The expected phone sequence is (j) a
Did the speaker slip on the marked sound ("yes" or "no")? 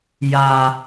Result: no